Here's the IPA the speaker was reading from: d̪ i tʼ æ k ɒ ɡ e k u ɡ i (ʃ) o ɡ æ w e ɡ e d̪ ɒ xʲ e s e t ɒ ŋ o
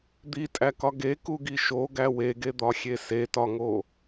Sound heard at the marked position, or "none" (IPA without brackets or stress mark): ʃ